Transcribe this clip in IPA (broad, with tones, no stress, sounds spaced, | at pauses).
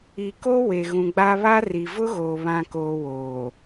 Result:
i˨ k o˦ w e˨ ɣ ũ˨ ɡ͡b a˦ β a˦ r i˨ v ʊ˦ ɣ oː˨ β ã˨ k oː˨ w oː˨